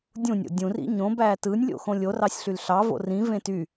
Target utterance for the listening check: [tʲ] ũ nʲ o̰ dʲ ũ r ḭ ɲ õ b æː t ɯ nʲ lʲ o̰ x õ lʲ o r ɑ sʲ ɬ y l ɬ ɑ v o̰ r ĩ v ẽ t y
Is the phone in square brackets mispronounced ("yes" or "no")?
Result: yes